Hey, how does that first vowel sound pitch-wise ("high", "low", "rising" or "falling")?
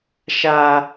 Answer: high